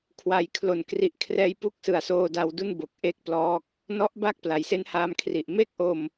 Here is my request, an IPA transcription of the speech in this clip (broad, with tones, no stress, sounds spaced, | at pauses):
kʰ w a˩˦ j kʰ l o˨˩ n k r i˨˩ ʔ kʰ r ɛː˧ j p u˥˩ k̚ s ɯ˨˩ a̯ s oː˧ d a˧ w d u˥˩ n b o˨˩ k̚ ʔ e˥˩ k̚ p l ɔː˥˩ k̚ | n ɔ˦˥ ʔ b a˥˩ k̚ p l a˩˦ j s e˦˥ n h aː˧ m kʰ r i˨˩ ʔ m e˥˩ k̚ ʔ o˧ m